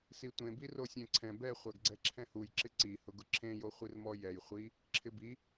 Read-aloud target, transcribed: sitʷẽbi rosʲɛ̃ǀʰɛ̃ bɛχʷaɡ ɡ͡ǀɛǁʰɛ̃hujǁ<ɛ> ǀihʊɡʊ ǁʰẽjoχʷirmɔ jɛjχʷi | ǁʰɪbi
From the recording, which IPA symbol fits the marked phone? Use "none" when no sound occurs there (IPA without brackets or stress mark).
ɪ